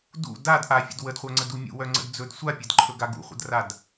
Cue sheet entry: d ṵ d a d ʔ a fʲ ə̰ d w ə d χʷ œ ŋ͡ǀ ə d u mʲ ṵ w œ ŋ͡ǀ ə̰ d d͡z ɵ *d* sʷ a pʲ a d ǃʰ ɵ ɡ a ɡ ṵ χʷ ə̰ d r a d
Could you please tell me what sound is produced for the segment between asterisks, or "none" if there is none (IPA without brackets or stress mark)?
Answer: d